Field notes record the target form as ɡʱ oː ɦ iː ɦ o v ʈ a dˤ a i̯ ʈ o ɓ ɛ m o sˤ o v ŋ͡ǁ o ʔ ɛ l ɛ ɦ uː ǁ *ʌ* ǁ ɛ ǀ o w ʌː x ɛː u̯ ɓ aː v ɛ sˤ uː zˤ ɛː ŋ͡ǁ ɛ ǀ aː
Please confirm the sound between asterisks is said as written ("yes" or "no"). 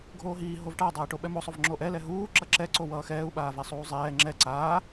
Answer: yes